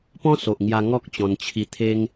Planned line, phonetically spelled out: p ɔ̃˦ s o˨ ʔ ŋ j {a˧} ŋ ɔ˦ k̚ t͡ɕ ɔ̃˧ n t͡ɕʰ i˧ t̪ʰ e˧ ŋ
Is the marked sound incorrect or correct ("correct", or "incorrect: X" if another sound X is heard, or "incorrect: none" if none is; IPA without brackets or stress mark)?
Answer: correct